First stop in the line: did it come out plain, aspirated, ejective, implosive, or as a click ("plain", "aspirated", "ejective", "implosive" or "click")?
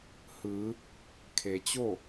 aspirated